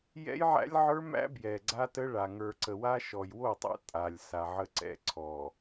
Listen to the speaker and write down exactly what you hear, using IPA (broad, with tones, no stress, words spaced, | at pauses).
jɛ̰˦jʕæ̰˦lʲʕə˞˦mæ̰˦ bjɛ˨ ɡ͡ǀa˦tə˦ɭa˨ ŋə˞˨ǀə˨wa˦ʃɔ˨j wo˦˨tˤɛ̰˦ tʼa˨lʲ sa˨ʕə˦ǀɛ̰˦ ǀʰɔ˨